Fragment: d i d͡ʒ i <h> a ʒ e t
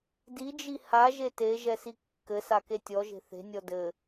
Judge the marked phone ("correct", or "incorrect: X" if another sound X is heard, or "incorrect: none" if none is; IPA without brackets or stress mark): correct